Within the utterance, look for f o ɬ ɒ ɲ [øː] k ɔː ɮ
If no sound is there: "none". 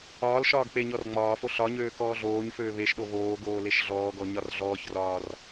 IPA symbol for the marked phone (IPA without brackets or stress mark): øː